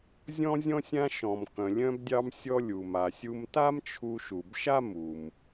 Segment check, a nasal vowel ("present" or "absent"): present